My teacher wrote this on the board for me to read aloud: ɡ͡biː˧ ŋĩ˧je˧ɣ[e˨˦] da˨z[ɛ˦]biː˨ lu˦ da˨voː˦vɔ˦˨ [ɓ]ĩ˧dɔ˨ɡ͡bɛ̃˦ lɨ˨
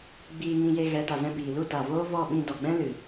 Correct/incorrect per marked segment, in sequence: incorrect: ɛ˨˦, incorrect: ɛ̃˦, correct

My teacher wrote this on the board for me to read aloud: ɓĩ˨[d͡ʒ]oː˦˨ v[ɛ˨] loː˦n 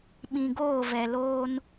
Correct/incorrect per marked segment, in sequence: incorrect: ɡ, correct

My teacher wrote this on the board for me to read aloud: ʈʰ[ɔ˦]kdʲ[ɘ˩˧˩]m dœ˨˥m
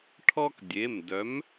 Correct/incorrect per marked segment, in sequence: correct, incorrect: e˩˧˩

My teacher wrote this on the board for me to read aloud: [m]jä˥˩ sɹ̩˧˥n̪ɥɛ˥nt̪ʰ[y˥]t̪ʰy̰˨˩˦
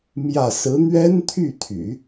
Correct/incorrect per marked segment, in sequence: correct, incorrect: y˥˩

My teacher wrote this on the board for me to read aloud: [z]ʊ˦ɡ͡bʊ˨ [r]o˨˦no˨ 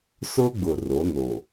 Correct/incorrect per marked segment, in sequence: incorrect: s, correct

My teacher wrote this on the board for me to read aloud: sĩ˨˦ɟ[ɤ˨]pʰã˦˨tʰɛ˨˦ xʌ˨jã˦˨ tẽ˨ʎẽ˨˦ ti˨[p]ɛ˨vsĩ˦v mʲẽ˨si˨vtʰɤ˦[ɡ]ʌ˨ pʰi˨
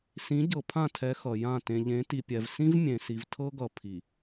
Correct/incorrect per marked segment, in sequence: correct, incorrect: pʲ, correct

